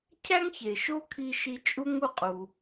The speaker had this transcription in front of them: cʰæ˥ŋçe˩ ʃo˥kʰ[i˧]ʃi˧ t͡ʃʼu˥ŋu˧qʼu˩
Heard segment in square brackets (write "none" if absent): i˧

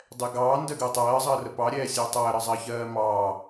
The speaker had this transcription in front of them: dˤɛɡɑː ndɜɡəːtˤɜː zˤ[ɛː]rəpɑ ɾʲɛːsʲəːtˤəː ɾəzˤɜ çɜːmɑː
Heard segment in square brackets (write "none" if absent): əː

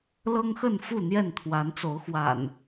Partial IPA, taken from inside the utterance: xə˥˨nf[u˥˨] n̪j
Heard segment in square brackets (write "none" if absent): u˥˨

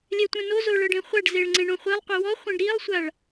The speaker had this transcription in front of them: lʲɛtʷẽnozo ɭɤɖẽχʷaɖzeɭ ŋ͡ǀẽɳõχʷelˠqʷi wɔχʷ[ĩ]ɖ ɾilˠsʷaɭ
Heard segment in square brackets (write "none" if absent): ĩ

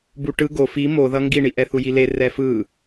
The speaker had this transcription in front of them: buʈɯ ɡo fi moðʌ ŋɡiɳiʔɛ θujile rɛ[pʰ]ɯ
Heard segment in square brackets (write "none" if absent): f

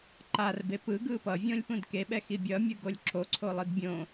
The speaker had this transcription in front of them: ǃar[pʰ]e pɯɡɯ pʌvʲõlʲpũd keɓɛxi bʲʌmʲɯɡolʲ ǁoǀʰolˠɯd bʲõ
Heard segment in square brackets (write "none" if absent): b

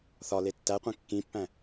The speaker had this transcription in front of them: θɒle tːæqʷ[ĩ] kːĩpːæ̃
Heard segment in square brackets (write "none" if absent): ĩ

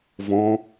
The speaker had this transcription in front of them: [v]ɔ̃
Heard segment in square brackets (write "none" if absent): v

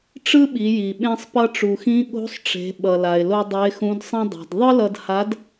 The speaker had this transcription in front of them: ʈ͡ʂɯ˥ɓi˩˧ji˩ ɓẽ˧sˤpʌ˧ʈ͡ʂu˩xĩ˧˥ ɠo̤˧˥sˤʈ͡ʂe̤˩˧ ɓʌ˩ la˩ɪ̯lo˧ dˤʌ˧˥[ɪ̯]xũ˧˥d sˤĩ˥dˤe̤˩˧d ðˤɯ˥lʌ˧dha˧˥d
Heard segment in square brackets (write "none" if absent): ɪ̯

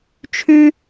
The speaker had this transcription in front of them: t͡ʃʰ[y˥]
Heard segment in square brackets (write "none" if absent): y˥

